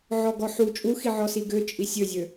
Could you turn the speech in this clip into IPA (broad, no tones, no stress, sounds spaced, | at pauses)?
ʕ ɔ ɡ ɔ ħ u t͡ʃʼ u x i ʕ ɔ s i ɡ ø t͡ʃʼ i sʲ ø zʲ ø